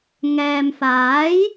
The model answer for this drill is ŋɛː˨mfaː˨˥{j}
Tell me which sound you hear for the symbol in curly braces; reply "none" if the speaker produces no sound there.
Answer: j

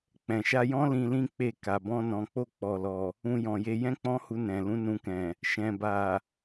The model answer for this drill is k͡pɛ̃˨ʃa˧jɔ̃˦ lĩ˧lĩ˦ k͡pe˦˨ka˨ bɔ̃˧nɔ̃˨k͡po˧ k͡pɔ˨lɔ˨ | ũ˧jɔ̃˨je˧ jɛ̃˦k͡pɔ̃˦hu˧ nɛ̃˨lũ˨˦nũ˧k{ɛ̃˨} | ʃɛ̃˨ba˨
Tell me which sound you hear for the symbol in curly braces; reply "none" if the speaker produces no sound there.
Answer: ɛ̃˨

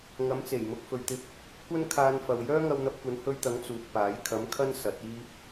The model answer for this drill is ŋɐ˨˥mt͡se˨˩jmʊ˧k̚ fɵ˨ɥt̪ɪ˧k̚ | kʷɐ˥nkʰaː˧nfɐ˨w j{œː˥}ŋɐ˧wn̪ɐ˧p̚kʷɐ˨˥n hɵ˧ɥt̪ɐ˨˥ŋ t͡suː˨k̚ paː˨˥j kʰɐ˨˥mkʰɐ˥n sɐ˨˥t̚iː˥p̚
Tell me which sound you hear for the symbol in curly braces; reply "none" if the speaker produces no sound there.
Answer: œː˥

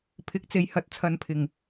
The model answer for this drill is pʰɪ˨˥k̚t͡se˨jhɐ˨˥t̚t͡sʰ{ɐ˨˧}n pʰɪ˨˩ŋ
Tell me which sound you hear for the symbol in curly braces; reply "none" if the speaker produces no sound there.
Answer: ɐ˨˧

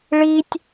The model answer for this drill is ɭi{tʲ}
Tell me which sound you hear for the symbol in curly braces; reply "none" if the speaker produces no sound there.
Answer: tʲ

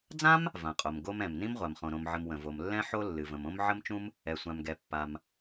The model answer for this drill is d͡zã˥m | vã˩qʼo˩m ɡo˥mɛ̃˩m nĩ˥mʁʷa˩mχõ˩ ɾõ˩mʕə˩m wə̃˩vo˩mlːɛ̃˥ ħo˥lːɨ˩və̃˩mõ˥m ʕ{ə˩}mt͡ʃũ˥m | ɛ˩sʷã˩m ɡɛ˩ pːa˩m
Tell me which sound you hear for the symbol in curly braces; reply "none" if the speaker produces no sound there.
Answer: ə˥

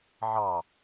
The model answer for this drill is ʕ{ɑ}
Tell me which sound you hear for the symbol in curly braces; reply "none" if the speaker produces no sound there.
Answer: ɑ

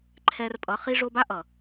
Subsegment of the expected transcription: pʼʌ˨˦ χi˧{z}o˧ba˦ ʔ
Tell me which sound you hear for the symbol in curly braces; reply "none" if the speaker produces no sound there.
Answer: ʐ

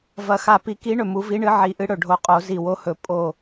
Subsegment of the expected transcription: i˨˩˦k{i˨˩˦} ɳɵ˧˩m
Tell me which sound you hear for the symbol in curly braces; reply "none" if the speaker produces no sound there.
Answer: i˨˥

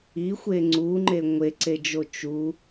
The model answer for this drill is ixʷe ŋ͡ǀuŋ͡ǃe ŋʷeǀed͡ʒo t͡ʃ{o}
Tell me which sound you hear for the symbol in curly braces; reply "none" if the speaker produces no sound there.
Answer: u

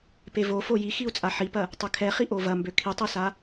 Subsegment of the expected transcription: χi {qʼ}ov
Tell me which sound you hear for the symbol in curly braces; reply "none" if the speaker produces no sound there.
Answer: ʔ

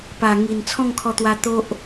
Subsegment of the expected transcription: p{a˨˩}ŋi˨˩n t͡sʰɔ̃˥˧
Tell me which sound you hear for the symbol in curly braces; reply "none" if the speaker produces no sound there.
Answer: a˨˩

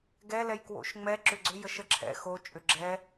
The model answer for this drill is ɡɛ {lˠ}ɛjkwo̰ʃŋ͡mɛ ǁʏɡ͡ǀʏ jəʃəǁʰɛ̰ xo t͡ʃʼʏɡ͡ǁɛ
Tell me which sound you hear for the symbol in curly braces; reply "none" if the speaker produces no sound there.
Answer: l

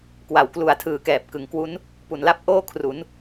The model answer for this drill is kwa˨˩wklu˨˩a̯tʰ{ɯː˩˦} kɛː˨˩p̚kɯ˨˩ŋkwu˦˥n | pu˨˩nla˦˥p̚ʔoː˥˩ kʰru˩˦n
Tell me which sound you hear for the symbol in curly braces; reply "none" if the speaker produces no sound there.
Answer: ɯː˩˦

